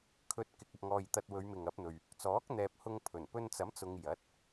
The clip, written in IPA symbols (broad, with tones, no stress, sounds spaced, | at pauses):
kʰ ɵ˧ t̚ k ɪ˨ k̚ ɐ˨ p̚ ŋ ɔː˨ j t̪ ɐ˧ t̚ w ɵ˨˧ ɥ m ɪ˨ ŋ ɐ˨˥ p̚ n̪ ɵ˨ ɥ | t͡s ɔː˨˥ k̚ n̪ ɛː˨ p̚ h ʊ˧ ŋ pʰ ɵ˨˩ n p ɵ˧ n t͡s ɐ˨˥ m t͡s ʊ˧ ŋ j ɐ˨˥ t̚